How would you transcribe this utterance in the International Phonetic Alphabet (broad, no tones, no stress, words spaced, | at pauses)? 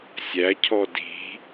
sʲæ cʰɔdi̤